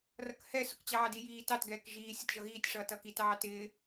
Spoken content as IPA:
r ʌ k h ɛ s ʊ k t͡ɕ ɑː d i j iː t ɑ t ɡ ɛː k ʒ iː sʲ ʌ t ʒ ʌ ɣ iː tʲ ʂ ʌː t ʌː k i t ɑː t ɪː

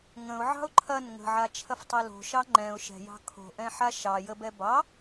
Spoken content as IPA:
ŋ ə̃ ʊ̯ ʕ ɑ̤ ʊ̯ ǃʰ ɐ n ŋ ə̤ ʕ a t͡ʃʰ ɐ f tˤ ɛ l o̤ ʃ ɑ ŋ͡ǃ ɛ̃ ʊ̯ ʃ ɛ̤ j ɑ̤ kʰ o̤ ʔ ɛ̃ ħ a ʃ ɑ j ə b ɛ b ɑ

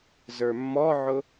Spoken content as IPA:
z ə˞ mː ɔ ʕ ʊ

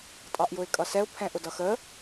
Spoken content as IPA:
tʼ ɑ ʔ j ʊ ɪ̯ kʼ ʌ s ɛ ʊ̯ pʰ ɛ̃ ʔ ʊ d ʌ x ə

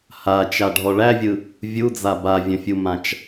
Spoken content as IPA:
h a t͡ʃ a ɖʱ ɔ ɭ æ vʲ ɯ | vʲ u d͡z a b a vʲ ə̃ fʲ u m ã t͡ʃ

